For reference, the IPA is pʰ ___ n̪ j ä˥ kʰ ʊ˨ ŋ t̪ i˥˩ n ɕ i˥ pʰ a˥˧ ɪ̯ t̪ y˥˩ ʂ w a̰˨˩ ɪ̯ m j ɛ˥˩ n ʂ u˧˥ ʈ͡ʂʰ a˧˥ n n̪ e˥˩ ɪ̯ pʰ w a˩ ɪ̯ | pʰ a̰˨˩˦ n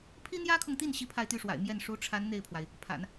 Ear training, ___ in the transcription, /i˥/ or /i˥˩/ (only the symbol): i˥